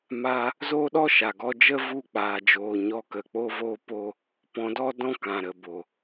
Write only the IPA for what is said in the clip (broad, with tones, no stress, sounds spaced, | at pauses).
m aː˧ | z oː˦ ɗ ɔ˦ ʃ a˨ ɡ ɔ˧ d͡ʒ ə˦ v u˦˨ k͡p aː˨ d͡ʒ oː˨ ɲ ɔ˧ k ə˨ k͡p o˦ v oː˦ p o˦ | p ɔ̃˨˦ d ɔ˦ d ɔ̃˦ k ã˨ ɾ ə˨ b o˨